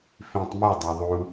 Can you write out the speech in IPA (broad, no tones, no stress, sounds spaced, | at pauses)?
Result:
f ĩ tˤ m u dˤ a ðˤ u